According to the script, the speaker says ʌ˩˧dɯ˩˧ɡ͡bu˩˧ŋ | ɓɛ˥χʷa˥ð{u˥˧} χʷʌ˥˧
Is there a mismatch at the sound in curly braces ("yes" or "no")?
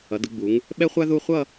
no